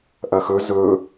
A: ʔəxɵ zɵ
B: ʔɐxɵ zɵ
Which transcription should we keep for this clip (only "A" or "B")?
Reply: B